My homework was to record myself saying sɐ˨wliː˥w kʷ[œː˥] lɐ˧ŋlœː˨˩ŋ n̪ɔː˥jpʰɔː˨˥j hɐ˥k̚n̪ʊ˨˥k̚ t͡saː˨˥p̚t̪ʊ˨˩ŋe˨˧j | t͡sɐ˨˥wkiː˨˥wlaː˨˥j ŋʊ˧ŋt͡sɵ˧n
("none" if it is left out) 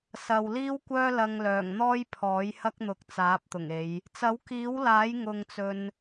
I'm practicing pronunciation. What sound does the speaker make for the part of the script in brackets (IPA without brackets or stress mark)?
œː˥